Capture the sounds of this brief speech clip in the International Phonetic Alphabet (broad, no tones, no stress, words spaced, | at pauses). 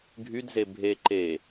ɡʱydze bʱe ǃe